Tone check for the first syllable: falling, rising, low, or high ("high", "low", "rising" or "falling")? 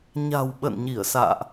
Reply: low